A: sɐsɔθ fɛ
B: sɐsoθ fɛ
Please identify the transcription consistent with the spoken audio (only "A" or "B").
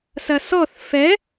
A